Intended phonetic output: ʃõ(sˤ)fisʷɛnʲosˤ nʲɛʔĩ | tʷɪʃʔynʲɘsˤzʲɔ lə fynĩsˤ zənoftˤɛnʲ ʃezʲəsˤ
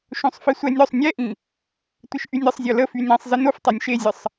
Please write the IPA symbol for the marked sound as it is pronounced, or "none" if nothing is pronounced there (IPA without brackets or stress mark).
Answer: sˤ